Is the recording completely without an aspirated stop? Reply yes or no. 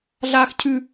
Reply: no